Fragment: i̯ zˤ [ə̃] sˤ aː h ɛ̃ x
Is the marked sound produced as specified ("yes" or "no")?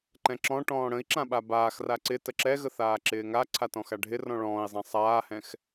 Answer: no